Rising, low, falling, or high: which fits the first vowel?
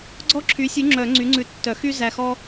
high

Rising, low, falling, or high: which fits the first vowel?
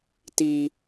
high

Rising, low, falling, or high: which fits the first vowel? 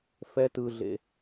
high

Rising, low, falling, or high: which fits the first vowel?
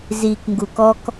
low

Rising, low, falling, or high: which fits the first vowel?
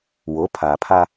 rising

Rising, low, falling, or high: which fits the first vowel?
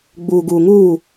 low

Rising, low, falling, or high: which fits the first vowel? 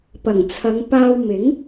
low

